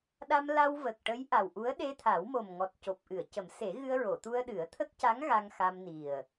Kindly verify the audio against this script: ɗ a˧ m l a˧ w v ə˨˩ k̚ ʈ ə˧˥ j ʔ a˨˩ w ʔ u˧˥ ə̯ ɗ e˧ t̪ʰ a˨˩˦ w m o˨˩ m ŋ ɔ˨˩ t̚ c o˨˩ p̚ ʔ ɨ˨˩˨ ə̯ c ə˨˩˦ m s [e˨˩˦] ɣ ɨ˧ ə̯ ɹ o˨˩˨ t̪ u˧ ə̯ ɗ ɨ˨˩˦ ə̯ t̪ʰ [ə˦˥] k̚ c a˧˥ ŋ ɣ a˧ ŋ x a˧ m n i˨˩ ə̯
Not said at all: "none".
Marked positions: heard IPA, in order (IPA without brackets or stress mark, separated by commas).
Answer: e˨˩˦, ə˦˥